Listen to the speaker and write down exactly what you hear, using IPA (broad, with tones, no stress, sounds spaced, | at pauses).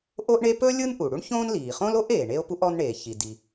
ʔ o˥ ʔ ɳ e˥ p ɵ˥ lʲ ɯ˥ n ʔ u˩ ɽ u˥ ɳ ç õː˥ n l iː˩ χ õ˥ l o˥ ʔ eː˩ ɳ e˥ o̯ p u˥ ʔ ɔ˥ n ɳ eː˩ ç i˩ d i˩